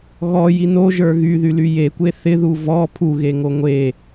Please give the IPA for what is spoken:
ɣ ɔ j i n o ʒ ə˞ ɣ y ð y l y j e kʷ e θ ɪ ð u v ɔ pʰ u ɣ e ŋ o ŋʷ e

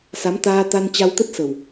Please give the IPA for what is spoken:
s a˨˦ m t̪ aː˧ t̪ a˧ n t͡ɕ a˧ w t̪ ə˦˥ t̚ s ə˨˩ w

